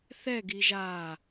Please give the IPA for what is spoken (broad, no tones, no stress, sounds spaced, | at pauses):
θ ɛ ɡ iː ʒ aː